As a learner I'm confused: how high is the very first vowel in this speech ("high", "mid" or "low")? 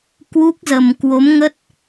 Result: high